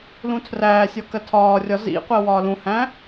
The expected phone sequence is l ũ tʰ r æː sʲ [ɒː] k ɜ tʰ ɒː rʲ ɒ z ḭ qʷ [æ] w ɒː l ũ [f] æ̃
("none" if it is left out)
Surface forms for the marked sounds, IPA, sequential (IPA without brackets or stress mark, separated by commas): ɒ, ɜ, h